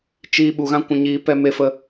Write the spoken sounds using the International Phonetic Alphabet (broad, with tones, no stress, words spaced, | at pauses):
t͡ʃiː˧ ɓu˨ɣã˧ kʷũ˨ɲiː˨˦pɛ˧ me˧fə˧